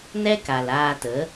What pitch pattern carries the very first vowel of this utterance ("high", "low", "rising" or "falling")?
high